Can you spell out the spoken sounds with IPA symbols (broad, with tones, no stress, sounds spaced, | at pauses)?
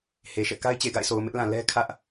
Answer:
h e˨ ʃ ɛ̰˦˨ k a˦ ɪ̯ t͡ɕ e˨ ɡ a̰˦˨ ɪ̯ sʰ o˨ ʊ̯ m ɪ˦ ʔ l ã˨ l ɛ˦ kʰ ä˦ ʔ